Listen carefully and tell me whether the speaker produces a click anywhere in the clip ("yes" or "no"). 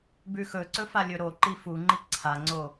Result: yes